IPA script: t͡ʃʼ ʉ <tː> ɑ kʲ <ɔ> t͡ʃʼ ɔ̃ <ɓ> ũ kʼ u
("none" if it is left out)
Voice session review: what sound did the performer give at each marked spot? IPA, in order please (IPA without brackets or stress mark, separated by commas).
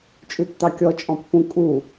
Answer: tː, ɔ, pː